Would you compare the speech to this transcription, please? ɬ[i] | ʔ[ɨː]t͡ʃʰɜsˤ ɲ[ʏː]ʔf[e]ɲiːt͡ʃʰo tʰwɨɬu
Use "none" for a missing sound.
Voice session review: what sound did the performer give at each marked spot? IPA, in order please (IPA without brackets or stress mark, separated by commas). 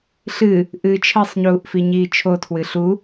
ɨ, ɨː, uː, i